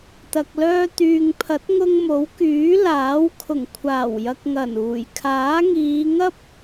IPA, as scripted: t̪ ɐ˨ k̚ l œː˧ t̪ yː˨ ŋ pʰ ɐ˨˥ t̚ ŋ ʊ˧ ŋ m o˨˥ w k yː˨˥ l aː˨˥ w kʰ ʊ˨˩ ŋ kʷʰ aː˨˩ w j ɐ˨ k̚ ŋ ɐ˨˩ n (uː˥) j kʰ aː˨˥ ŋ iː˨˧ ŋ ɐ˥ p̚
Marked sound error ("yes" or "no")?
yes